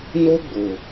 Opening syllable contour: high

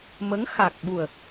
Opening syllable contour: rising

